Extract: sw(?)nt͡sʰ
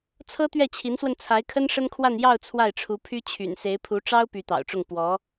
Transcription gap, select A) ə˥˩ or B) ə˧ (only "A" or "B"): B